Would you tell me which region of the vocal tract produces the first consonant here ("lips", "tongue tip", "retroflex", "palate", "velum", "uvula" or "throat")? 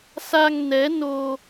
tongue tip